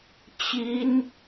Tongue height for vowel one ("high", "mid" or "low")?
high